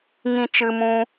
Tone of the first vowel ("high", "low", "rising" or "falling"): high